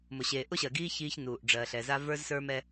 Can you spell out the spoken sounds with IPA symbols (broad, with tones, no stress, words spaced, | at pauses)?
mʊ˨ɕeː˨ ʔʊ˦ɕɜ˨ɡiː˦ çiː˦çnuː˨ʔ ɖ͡ʐɜ˨ɬɛ˨za˦ və˞˦zsə˞˦ mɛ˦